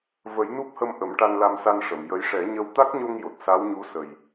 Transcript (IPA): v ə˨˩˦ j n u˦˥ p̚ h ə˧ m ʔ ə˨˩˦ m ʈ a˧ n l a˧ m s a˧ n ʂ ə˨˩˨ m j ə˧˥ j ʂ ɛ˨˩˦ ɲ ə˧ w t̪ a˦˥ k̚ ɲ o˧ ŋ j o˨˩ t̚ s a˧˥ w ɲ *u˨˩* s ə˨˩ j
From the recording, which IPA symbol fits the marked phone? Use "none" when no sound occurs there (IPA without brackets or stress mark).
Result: u˧˥